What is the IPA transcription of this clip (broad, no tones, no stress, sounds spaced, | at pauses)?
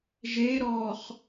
ʒ e ɾ ɔ χ